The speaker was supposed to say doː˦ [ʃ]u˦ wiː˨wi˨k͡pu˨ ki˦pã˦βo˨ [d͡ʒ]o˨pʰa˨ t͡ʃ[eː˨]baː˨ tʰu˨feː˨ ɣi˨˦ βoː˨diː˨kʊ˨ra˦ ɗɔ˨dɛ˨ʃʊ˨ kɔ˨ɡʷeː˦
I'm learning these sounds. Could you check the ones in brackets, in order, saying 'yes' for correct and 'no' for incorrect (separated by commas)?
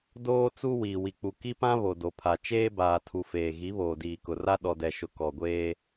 no, no, no